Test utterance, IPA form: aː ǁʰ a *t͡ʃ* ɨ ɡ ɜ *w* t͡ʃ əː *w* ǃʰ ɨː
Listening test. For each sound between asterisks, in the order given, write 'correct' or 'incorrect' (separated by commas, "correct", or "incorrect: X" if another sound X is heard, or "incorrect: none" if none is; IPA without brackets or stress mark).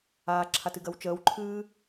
incorrect: t, correct, correct